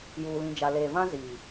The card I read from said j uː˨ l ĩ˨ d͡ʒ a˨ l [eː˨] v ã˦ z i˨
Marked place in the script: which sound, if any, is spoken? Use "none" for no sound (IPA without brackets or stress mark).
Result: eː˨